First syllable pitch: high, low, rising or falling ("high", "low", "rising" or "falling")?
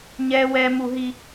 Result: high